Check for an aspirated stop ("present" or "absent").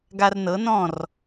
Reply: absent